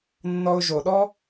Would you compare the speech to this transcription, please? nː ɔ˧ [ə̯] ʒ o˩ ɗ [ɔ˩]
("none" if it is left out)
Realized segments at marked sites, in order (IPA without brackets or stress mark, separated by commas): ʊ̯, ɔ˥